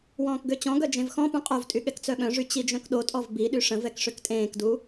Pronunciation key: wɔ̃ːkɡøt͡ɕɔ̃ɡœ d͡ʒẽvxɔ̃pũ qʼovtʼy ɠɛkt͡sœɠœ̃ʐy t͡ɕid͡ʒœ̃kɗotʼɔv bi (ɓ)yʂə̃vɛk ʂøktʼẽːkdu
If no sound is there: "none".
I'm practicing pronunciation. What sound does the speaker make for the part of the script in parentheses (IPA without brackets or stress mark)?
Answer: ɗ